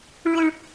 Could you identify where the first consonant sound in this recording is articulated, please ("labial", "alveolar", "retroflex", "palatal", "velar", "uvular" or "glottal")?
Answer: retroflex